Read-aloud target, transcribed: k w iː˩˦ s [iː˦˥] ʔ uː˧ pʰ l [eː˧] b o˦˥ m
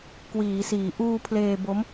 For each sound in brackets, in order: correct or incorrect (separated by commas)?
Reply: incorrect, correct